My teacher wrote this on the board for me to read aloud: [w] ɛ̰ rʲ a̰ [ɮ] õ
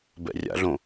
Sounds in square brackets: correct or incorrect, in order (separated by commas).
incorrect, correct